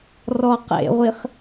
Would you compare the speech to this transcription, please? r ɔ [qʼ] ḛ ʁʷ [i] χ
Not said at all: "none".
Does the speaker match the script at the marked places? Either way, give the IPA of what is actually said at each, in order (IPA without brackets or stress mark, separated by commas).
q, i